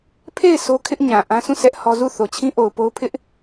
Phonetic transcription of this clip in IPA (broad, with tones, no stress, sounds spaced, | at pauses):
pʰ e˦˨ ɪ̯ sʰ o˦ kʰ ɪ˦ ʔ ɲ ã˨ ʔ ã˦ sʰ ũ˦˨ s ɛ˦ ʔ h ɔ˦ z u˦˨ θ o˨ t͡ɕʰ ĩ˦ ʔ o˨ ʊ̯ p o˦ ʊ̯ pʰ ɪ˦ ʔ